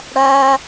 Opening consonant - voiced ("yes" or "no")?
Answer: yes